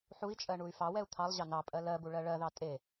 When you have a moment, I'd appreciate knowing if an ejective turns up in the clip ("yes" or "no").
yes